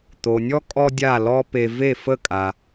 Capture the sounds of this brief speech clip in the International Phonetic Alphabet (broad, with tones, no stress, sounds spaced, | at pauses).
t̪ o˩ nʲ ɔ˥ kʼ ɔ˥ dʲ a˥˩ l ɔ˥ p e˧ v e˥˩ f ə˥˩ kʼ a˩